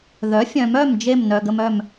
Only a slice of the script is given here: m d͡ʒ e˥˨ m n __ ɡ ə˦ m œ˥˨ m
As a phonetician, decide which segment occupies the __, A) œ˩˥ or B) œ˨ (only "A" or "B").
B